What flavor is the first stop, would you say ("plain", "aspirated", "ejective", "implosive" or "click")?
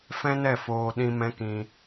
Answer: implosive